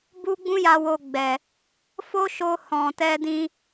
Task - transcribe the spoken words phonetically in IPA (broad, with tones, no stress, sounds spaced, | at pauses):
b u˦ ɡ͡b ũ˦ j a˧ w o˧ ɡ͡b ɛ˨ | f o˦ ʃ o˧ h ɔ̃˨ t ɛ˧ d ĩ˧